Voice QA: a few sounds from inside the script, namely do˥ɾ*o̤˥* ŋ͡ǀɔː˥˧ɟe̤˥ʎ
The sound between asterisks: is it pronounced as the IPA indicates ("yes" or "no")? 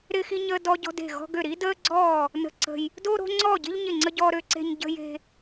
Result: yes